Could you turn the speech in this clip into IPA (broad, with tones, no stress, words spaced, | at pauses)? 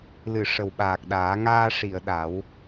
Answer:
lɨ˨˩˨ ʂə˨˩wɓaː˨˩k̚ɗaː˨˩˦ ŋaː˧ʂi˨˩˨ə̯ ɗa˨˩˦w